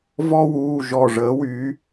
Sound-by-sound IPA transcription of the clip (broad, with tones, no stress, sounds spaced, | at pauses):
v ɔ˦ w uː˩˧˩ ʒ ɔ˧˩ ʐ əː˩˥ w yː˩˥